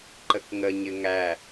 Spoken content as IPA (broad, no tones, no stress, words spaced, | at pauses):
ǃəkŋəɲɪ ŋæ